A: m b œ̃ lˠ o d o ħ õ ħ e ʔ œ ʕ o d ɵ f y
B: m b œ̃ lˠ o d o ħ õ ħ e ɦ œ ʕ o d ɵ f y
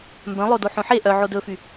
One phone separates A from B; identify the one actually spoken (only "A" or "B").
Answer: A